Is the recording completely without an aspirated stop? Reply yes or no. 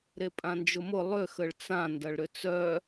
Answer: yes